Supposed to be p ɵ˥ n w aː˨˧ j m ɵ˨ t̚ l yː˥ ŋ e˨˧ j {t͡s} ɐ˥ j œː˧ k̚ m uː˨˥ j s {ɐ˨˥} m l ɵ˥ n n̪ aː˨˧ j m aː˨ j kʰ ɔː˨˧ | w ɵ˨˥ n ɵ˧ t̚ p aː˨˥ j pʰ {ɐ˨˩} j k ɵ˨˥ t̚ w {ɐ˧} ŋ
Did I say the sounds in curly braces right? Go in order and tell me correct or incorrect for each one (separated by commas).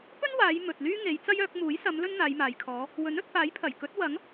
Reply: correct, incorrect, correct, incorrect